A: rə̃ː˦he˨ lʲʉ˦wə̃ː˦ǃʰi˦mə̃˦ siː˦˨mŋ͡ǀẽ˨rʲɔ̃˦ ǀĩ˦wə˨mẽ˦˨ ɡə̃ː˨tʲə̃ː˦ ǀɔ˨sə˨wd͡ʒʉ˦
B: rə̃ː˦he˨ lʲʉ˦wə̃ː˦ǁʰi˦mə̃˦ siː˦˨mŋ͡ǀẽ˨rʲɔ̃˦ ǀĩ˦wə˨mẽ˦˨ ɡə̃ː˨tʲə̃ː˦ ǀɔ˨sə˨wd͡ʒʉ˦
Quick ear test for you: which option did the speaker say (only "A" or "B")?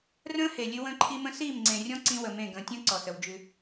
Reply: A